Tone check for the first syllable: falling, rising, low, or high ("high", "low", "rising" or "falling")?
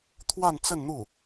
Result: falling